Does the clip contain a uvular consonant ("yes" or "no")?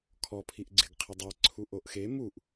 yes